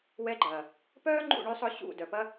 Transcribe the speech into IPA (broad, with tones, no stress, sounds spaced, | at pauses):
w ɛ˧ ɡ͡ǃ ɐː˨ | p œː˦ ŋ͡ǃ ṵ˦˨ ɳ y˧ sˤ ʊ˧ ɕ ṵ˦˨ d œ˨ p ɐ˦